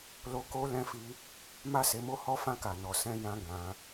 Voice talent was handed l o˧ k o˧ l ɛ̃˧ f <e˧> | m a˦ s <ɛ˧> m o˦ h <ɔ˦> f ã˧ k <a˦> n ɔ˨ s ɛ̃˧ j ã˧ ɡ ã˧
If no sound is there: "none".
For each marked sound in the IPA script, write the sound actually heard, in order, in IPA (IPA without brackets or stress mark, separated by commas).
i˧, e˧, ɔ˦, a˨